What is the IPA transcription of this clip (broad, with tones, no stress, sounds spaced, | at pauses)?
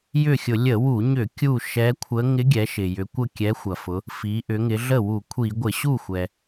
j ʏ˥˩ xʲ ʊ˧˩˧ lʲ ə˧˩˧ w u˧˩˧ ɲ ʏ˧˩˧ kʲ u˥˩ ʃ ɛ˧˥ kʷʰ ə˧˥ ŋ ɪ˧˥ ɡʲ ɛ˩˧ ʃ ɪ˩ j ʏ˩˧ kʷ ə˥˩ kʲ ɛ˧˥ xʷ ɐ˩ f ʊ˩˧ | f i˩˧ ʔ ʏ˩˧ ŋ ɪ˩˧ ɮ ə˥˩ w u˧˩˧ kʷʰ i˧˩˧ ɡʷ ɪ˧˩˧ ɕ u˥˩ xʷ ɛ˩